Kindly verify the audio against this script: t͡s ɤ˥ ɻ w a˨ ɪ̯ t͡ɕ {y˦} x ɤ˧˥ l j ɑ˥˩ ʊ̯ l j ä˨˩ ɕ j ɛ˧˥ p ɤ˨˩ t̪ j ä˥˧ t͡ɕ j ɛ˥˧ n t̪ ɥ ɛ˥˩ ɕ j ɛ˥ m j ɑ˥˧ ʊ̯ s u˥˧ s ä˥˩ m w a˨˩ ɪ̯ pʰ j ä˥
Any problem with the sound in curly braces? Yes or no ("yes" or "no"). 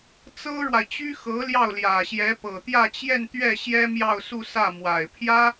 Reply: yes